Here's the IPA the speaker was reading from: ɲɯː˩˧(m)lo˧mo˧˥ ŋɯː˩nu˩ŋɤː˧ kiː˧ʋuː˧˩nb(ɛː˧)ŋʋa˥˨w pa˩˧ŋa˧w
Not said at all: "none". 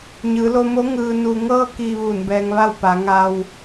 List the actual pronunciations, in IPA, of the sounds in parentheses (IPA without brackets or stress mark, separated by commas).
none, ɛː˧